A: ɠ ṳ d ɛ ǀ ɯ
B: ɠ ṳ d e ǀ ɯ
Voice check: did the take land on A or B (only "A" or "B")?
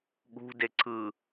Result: B